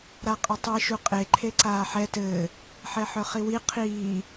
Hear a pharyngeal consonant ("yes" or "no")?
yes